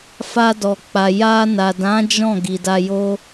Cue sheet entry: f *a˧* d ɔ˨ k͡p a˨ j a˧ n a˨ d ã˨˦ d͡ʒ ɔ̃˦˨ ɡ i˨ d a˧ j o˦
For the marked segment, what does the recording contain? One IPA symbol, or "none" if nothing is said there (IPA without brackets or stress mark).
a˧